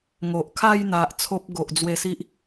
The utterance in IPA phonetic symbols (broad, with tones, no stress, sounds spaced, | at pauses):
ŋ o˨ ʔ kʰ a˥˧ j n̪ a˨ ʔ t͡sʰ o˦ p̚ ɡ o˨ ʔ d͡z w e˧ s i˦ ʔ